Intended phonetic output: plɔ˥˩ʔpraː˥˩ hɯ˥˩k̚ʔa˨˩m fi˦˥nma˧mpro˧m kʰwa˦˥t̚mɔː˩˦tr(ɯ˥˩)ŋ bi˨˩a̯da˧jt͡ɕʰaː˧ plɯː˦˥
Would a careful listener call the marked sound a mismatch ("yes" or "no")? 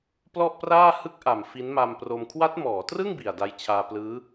no